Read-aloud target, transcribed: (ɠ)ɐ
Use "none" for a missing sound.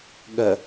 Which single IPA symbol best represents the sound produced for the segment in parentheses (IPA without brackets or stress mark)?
ɠ